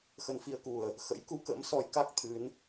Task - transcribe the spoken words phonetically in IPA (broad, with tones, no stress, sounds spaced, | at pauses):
x ə˧ n f i˧ ə̯ k u˨˩ ə̯ | x ə̰˧˥ j k u˧ k ə̰˧˥ m s ɔ˨˦ j k a˦˥ k̚ t̪ʰ ɨ˨˦ n